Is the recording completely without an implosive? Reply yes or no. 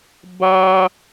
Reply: yes